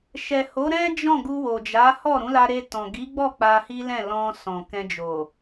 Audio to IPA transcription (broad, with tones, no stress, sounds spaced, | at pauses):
ʃ ɛ˨ h o˨˦ ɾ ɛ̃˦ d͡ʒ ɔ̃˦˨ ɡ u˧ w o˨ d͡ʒ a˨˦ h ɔ˦˨ ɾ ũ˨˦ l a˧ ɾ e˧ t ɔ̃˨ ɡ i˨˦ ɡ͡b ɔ˦˨ k͡p a˧ h i˦ l ɛ̃˦˨ l ɔ̃˧ s ɔ̃˨ k ɛ̃˧ d͡ʒ o˨